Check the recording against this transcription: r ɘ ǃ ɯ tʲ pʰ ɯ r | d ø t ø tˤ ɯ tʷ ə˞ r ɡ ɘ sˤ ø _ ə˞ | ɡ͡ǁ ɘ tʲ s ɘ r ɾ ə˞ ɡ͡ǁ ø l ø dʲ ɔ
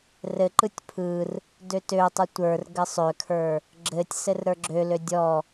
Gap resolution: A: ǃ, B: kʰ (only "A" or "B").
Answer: B